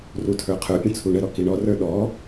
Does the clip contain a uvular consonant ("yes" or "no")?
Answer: yes